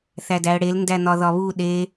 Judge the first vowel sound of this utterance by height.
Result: low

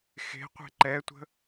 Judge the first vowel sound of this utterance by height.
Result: mid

